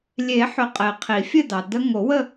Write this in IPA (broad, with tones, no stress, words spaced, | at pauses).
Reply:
lʲe˨˩˦ħʏ˨ qʼe˨qʰi˨˩˦fʲɘ˥˧dɑ˨ də˦˥ ŋo˨˩˦wə˥˧